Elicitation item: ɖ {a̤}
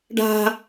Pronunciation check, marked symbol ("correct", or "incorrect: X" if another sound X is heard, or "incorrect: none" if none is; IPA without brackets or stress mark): correct